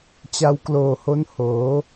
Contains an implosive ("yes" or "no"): no